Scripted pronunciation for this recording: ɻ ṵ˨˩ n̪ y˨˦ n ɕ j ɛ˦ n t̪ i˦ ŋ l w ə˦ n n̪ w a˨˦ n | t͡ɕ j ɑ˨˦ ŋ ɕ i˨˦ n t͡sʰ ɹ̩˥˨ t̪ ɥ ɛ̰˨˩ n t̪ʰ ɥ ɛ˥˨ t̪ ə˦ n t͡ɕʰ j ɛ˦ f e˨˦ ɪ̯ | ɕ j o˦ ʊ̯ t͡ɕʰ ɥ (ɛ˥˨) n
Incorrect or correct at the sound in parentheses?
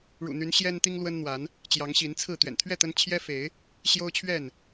correct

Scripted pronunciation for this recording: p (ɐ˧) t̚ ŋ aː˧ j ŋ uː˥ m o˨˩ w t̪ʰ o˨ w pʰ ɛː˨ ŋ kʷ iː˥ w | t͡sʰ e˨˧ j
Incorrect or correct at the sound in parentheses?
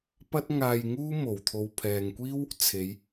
incorrect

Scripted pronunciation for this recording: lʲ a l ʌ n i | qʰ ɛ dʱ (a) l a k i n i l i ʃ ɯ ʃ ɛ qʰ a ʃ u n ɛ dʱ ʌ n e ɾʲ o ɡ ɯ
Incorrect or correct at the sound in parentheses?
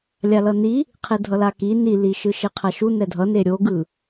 incorrect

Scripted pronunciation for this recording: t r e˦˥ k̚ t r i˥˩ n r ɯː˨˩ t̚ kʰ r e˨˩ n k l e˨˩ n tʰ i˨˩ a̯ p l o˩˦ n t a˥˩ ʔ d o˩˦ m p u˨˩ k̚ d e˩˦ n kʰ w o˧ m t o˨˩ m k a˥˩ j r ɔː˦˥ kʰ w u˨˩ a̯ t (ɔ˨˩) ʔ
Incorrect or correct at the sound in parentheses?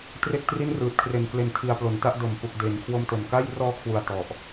correct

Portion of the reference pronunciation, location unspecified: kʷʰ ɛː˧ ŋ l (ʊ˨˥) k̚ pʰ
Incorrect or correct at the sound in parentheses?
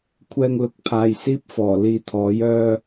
correct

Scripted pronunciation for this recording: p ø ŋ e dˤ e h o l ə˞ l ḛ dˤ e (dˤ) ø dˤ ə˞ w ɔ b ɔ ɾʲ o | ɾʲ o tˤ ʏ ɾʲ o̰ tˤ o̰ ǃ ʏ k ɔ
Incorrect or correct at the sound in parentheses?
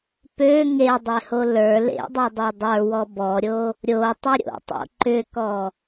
correct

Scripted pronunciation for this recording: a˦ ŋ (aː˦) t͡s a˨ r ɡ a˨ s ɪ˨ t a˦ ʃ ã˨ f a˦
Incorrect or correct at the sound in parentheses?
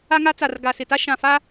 incorrect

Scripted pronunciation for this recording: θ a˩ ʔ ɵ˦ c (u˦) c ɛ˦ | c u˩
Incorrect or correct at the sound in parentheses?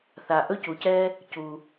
incorrect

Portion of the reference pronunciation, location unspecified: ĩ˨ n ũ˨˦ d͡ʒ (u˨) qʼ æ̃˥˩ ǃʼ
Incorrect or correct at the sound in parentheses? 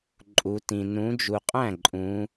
correct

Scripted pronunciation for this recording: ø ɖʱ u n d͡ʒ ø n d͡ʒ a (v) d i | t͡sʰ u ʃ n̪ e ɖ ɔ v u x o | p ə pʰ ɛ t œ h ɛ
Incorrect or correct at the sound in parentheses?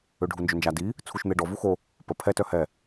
incorrect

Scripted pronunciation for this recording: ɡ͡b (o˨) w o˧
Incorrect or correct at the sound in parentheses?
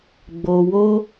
correct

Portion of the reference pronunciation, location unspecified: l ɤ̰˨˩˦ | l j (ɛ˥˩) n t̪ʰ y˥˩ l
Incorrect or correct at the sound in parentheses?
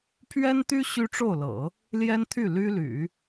incorrect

